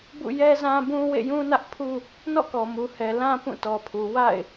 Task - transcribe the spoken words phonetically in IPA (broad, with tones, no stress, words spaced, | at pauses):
bṵ˦˨ jɛ˦zã˦bũ˦ wḛ˦˨jũ˦nä˦ʔpʰu˦ | nɔ̰˦˨kɔ˨mu˨ hɛ˨lã˦ pũ˦˨tɔ˨pʰu˨ wa̰˦˨ɪ̯